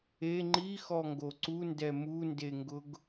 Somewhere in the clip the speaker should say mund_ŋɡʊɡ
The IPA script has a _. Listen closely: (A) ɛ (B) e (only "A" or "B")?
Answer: B